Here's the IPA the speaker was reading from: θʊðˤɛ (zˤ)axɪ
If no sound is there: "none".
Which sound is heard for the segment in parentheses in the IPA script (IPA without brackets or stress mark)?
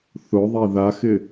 ð